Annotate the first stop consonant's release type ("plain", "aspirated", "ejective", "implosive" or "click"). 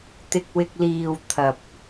plain